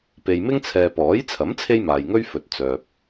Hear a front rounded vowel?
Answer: yes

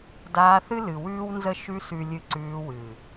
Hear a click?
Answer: yes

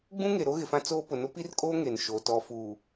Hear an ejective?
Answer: yes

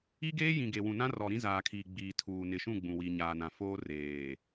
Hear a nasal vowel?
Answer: yes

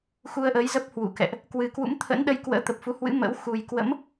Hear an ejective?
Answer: no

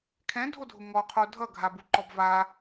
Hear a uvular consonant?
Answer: yes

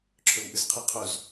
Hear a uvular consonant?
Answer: yes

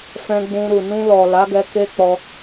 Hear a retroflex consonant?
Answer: no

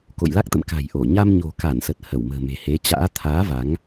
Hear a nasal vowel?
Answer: no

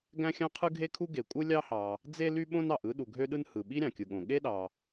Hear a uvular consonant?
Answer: yes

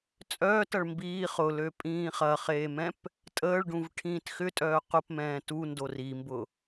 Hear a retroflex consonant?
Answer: yes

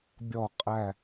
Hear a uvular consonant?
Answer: yes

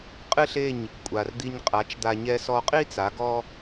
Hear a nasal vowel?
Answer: no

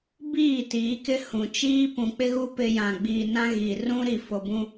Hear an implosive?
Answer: no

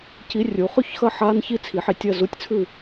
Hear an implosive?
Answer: no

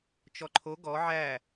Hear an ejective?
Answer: no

